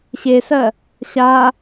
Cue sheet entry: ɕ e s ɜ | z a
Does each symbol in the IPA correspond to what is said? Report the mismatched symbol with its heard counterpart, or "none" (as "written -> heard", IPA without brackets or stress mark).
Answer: z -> ɕ